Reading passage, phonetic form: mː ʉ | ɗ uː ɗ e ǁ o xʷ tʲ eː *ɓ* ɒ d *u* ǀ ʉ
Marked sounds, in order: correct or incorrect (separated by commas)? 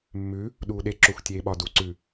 correct, correct